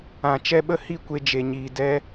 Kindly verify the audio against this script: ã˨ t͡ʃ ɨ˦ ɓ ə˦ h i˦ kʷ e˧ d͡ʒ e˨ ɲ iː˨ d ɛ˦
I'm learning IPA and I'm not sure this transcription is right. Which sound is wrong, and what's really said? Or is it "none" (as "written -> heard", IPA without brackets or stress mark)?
ɨ˦ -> ɛ˦